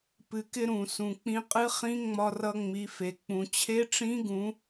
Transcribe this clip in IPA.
p ɨ˩ k ɪ˧ ɾ ũ˩ s ũ˩ k͡p ĩ˧ qʼ ɨ˧˥ χ ĩ˧˥ ŋ͡m ɒ˧ r ʌ˧ ŋ͡m i˩˧ f e˩ k͡p ũ˩ t͡ɕʰ e˧˥ ʈ͡ʂ ĩ˧˥ ɡ ũ˩˧

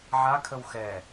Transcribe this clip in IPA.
ʕ a kʰ ə w x ɛ

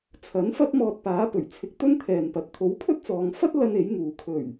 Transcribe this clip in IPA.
t͡sʰ ɐ˨˥ n f ɐ˥ t̚ m ɔː˧ t̚ p aː˨˥ p ɵ˨˩ ɥ t͡sʰ ɪ˧ k̚ t̪ ɵ˥ n t̪ʰ ɛː˨ n p ɐ˨˥ t̚ t̪ʰ o˨˥ w pʰ ɵ˥ t̚ t͡s ɔː˨ ŋ f ɐ˥ t̚ l ɐ˥ n e˨˥ j ŋ uː˨ kʰ ɵ˨˩ ɥ

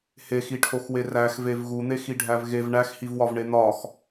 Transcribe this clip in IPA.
h e x i ʈʰ o x w e r æ x v e v ɣ u n̪ e x i ɖʱ æ v ɣ e v ɳ æ x h i v w ɒ v ɳ e n̪ ɒ x

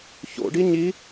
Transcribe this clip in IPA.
ç o̰ ɖ i ɲ i

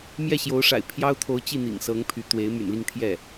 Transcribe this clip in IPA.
m j ɛ˥˩ ɕ j o˧˥ ʊ̯ ʂ a̰˨˩ ɪ̯ pʰ j ɑ˥ ʊ̯ t̪ʰ o˧˥ ʊ̯ t͡ɕ i˥˩ n̪ ḭ˨˩ ŋ s ɤ˧˥ ŋ pʰ y˧˥ t̪ w e˧˥ ɪ̯ m y̰˨˩ n l i˥˧ ŋ t̪ʰ j ɛ˥˩

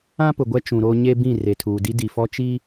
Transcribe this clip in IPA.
ã˦ p ʊ˨ ɡʷ ɛ˦ t͡ʃ ũ˨ ɾ oː˦ ɲ e˦ b ĩ˦˨ r e˨ tʰ uː˨ d i˦ d i˨ f ɔ˦ t͡ʃ i˦

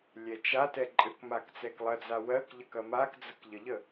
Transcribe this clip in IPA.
lʲ ɛ t͡ʃ a t ɛ ǃʼ ɘ k m a k t͡s ɛ k lˠ ɐ d͡z a w ɜ k ʎ ə k ɐ m a k d͡z ə k ʎ ə ʎ ə

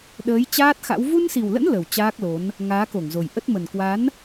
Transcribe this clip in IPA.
ɗ əː˨˦ j t͡ɕ aː˦˥ t̚ x a̰˧˥ w v u˧ n s i˨˩ w l ə̰˧˥ n l ə˨˩ w t͡ɕ aː˦˥ k̚ l o˨˦ n | ŋ aː˨˦ k o˧˩ ŋ z o˨˩ j ʔ ə˦˥ t̚ m ə˨˩ n k w a˨˦ n

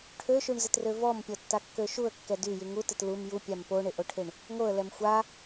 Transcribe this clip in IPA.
ʈʰ ø ʃ y ɳ z ɪ t r ø v ɔ m pʲ ɔ tː a kː ø ʃ u ə̯ kː ɛ d y j y ŋ u t ɪ t l u m j u pʲ a m p o ɳ ɪ ʔ o ʈʰ ɪ ɳ | ŋ o ə̯ l ɛ m xʷ a

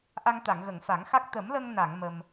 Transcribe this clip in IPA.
ʔ a˧ ŋ t̪ a˨˩˨ ŋ ɣ ə˨˩˨ ŋ f a˨˩˦ ŋ x a˦˥ k̚ t̪ ə˨˩˦ m l ə˧ ŋ n a˨˩˨ ŋ m ə˧ m

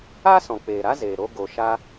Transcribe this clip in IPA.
a˦ s ɔ̃˨ k͡p eː˨ ɾ a˦ z eː˨ ɾ o˧ ɡ o˨ ʃ a˧

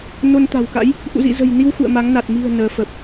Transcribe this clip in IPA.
n o˧ n t̪ a̤˨˩ w k a̰˧˥ j | ʔ ṵ˧˨ z ḭ˧˨ z ə̤˨˩ j n i˧ w x ṵ˧˨ ə̯ m a˨˦ ŋ n a˨˩ t̚ m i̤˨˩ ə̯ n əː˨˦ f ə˨˩ p̚

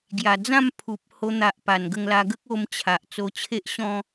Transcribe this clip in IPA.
ɡ j a˨˩ d͡z ã˥˧ m pʰ u˨ p̚ h o˧ n̪ a˨ ʔ p a˨˩ n ɡ ə˧ ŋ l a˧ ɡ ə˦ k̚ o˧ m t͡ɕʰ a˨ ʔ t͡s o˧ t͡ɕʰ e˦ ʔ ɕ ɔ̃˦

